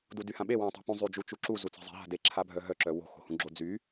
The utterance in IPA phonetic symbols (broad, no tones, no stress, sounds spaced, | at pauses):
d u d y h ã ɓ e w ã tˤ ṳ p ũ zˤ y d͡ʒ u t͡ʃ u ǁ u z u t͡s e̤ zˤ e̤ ɦ a̤ d e ǁʰ a bʱ œ ɦ œ ǁ œ w o̤ x o̤ h ũ ɡ͡ǁ o d͡z y